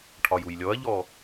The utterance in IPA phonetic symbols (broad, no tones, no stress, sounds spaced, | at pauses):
ʈʰ ɒ j u j lʲ ɔ ɐ̯ ʎ ɔ